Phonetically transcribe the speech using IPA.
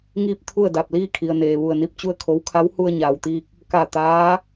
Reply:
ŋiː˥˨p̚t̪ʰu˥˨ə̯ da˧˩p̚liː˥˨kʰi˩ə̯neː˩ ʋu˧˩ə̯ni˧p̚ t͡ɕu˥˨ə̯kʰo˧˥w kʰa˧˥whu˧ə̯ ɲaː˩wt̪iː˧k̚ | ka˧˩ t̪aː˧˥

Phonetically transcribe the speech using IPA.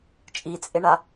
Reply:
t͡ʃʼit͡sʼɪɳa

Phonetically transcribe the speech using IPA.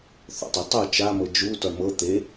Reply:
θɔ̰tˤe tˤu t͡ʃamɤ d͡ʒu tɔɳmɤ t̪e

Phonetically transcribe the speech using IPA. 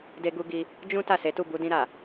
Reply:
de˧ɡu˧ ɡi˧ | d͡ʒũ˦ ta˦˨se˨˦tu˦˨ bu˧dĩ˧ɾa˨

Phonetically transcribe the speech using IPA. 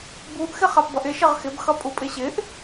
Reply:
buʔ xɪχapbʌʔɪ ʃɪʁxɪb xʌpʼupʼɪɕɪʔ

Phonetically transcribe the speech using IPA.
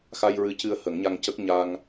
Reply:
xa˧jɹɨ˧˥cɨ˧ə̯ hə˨˩˦ŋɲa˧ŋcə˦˥k̚ ɲa˧ŋ

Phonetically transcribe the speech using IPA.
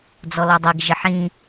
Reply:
d͡zɔlɔdˤiɡ ʒəħĩ

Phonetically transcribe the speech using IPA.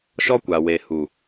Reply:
ʃɔ˦kʷa˨we˨hu˨

